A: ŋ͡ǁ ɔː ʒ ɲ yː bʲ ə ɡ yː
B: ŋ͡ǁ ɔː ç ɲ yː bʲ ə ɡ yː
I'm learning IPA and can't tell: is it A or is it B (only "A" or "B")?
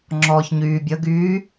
B